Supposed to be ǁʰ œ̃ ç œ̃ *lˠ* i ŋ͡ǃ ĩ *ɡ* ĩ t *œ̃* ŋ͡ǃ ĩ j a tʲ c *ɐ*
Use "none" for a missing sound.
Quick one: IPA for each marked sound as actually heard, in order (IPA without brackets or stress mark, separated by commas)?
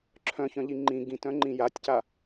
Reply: ʎ, ɡ, œ̃, a